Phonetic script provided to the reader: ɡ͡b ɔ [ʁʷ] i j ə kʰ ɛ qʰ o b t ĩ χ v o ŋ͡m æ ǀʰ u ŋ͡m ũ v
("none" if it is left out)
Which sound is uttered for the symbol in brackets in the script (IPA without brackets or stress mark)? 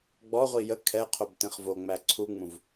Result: ʁʷ